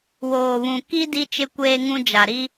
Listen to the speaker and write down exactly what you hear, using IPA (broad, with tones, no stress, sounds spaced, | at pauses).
w oː˨ β ũ˨ k i˦ d i˦ t͡ʃ ɪ˦ kʷ eː˦ ŋ ũ˦ d͡ʒ a˨ ɾ i˦